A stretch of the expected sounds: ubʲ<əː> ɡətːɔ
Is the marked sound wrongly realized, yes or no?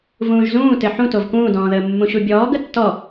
yes